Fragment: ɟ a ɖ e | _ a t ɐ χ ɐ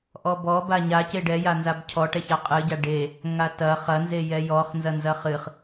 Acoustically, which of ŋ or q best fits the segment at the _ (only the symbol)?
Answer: ŋ